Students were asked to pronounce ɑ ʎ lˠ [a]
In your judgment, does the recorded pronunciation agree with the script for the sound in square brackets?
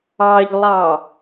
no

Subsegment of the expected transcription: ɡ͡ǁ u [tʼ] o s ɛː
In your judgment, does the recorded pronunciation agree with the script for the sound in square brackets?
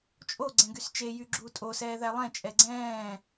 yes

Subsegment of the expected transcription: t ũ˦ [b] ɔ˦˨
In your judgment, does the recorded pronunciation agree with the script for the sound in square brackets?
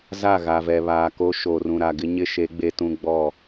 no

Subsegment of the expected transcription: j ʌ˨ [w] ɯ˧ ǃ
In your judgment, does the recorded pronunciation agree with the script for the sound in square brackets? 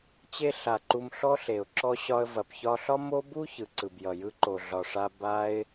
no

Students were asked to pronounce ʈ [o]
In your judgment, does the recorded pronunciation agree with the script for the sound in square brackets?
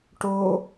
yes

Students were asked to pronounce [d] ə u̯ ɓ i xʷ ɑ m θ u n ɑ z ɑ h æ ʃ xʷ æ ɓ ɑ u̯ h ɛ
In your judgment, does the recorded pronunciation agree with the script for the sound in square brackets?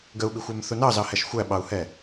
no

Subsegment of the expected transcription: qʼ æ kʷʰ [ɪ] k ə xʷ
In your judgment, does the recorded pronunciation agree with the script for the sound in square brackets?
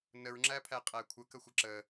no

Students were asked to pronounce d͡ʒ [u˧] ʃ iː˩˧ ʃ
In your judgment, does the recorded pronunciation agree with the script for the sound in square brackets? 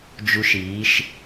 yes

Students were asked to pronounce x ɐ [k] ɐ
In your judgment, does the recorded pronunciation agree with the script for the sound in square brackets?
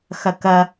yes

